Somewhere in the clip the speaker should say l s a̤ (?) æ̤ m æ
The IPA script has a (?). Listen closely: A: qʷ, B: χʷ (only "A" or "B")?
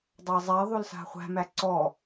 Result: B